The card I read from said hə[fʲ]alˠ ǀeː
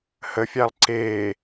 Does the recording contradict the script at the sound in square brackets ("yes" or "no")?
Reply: no